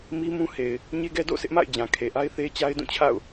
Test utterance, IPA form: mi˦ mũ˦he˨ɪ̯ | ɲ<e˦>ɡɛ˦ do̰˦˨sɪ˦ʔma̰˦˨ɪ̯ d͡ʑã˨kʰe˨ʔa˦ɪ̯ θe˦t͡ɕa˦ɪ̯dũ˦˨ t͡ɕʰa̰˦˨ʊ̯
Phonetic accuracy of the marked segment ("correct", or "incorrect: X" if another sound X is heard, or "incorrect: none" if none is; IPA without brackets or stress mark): correct